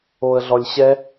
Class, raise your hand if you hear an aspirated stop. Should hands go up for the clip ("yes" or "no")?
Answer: no